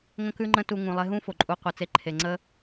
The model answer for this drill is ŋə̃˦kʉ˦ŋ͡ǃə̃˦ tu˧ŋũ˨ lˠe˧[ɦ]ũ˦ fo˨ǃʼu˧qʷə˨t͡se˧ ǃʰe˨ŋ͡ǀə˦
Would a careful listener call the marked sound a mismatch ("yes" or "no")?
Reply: no